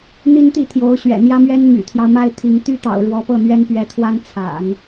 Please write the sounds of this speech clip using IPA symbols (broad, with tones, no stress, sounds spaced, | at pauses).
n̪ i˥ n t̪ i˥˩ t̪ʰ j o˧˥ ʊ̯ ɕ ɥ ɛ̰˨˩ n̪ j ä˥ m ɥ ɛ˥ n m y̰˨˩ t̪ʰ j ɑ˦ ʊ̯ m a˥˩ ɪ̯ t̪ʰ i˧˥ ŋ t̪ y˥ t̪ ɑ̰˨˩ ʊ̯ ɻ w ɔ˧˥ p ɤ˥˩ n̪ ɥ ɛ˥ n p ɥ ɛ˧˥ t̪ʰ w a˥ n t͡sʰ a̰˨˩˦ n